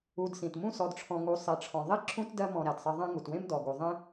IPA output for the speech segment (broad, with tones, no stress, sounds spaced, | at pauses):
u˨ d s ĩ˩ t m ũ˦ s ɔ˨ d ʈ͡ʂʰ ɔ̃˨ ŋ u˨ sˤ i˨ ʈ͡ʂʰ ɔ̃˨ ðˤ i˥ ǁʰ ũ˥ t d ɜ˦ m ɔ̃˨ ɾ æ˩ d sˤ i˨ ðˤ æ̃˦ ŋ u˩ t w ẽ˦ m d ɔ˩ ɡ u˩ ðˤ ẽ˦